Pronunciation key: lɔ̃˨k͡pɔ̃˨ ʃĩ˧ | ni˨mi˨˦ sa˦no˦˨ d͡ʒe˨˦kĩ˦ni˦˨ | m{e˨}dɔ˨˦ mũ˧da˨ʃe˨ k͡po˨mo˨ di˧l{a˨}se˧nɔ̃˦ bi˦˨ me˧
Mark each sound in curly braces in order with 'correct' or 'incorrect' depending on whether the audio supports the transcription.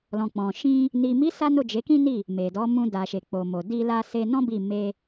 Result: correct, incorrect: a˧

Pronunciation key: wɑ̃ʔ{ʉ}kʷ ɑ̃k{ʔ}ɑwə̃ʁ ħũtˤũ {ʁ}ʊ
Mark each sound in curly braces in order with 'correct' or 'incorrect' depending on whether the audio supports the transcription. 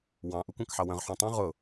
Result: incorrect: u, incorrect: ħ, correct

